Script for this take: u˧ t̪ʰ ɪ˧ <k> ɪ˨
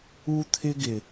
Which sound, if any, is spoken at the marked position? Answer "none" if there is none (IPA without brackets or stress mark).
ɡ